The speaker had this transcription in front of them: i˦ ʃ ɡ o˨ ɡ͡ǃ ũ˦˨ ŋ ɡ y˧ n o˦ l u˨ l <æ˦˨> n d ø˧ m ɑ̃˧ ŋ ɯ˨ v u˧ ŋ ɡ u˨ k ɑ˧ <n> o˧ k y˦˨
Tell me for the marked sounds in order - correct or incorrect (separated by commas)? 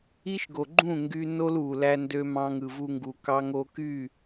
incorrect, incorrect